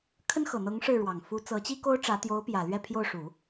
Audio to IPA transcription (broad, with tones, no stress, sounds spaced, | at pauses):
kʰ ə˥ n x ɤ˨˩ n̪ ɤ˧˥ ŋ ʂ ɻ̩˥˩ ɻ w ɑ˨˩ ŋ f u˧˥ t͡s ɤ˧˥ t͡ɕ i˥ k o˥ ʊ̯ ʈ͡ʂ ä˧˥ t̪ j o˧˥ ʊ̯ p j ä˨˩ l ɥ ɛ˥˧ pʰ j o˥˩ ʊ̯ ʂ u˨˩˦